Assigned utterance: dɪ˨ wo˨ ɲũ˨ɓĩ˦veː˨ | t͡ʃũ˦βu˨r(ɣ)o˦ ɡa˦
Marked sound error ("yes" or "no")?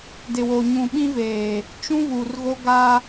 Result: no